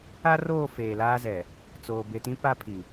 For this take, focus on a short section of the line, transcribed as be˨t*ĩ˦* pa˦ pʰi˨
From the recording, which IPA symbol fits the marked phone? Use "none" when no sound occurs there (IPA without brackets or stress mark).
ĩ˦